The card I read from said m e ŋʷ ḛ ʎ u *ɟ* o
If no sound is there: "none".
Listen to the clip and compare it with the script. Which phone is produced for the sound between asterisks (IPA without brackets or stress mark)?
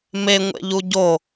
ɟ